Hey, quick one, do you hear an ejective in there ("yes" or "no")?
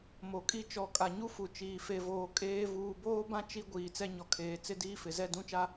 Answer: yes